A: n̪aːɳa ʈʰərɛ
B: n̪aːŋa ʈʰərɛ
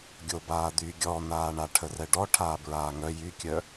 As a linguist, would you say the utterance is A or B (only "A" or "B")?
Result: A